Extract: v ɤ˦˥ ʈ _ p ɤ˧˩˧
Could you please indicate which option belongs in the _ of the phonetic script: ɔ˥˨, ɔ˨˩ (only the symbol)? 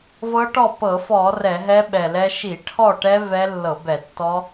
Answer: ɔ˥˨